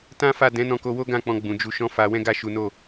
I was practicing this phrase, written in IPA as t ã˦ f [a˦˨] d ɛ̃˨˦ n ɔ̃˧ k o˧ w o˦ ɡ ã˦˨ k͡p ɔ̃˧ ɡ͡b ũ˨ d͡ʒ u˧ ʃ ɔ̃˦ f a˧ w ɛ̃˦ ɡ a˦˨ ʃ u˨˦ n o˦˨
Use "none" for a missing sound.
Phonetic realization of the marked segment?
a˦˨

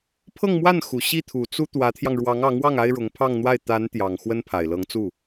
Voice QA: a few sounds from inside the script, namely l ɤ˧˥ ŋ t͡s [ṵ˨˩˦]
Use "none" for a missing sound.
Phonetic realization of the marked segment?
u˥˩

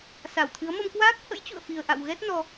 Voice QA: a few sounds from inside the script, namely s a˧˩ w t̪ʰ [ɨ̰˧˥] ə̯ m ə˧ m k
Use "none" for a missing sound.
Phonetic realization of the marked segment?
ɨ˨˦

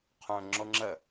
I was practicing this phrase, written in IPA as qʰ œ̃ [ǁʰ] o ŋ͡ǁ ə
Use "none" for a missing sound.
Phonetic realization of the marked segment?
ŋ͡ǁ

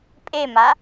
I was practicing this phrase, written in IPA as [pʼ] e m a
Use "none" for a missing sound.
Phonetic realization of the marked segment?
pʼ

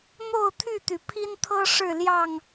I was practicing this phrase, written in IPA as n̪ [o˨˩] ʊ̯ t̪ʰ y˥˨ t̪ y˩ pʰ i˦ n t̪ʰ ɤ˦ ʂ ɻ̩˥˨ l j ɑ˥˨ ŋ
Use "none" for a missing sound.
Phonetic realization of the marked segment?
o˥˨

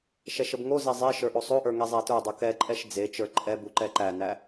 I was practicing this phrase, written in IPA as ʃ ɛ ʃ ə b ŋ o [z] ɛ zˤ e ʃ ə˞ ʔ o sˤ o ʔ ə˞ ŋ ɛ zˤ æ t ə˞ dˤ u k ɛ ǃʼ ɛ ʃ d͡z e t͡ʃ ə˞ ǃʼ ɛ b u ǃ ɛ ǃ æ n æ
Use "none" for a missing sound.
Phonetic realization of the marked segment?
z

